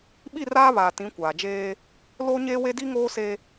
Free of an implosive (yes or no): no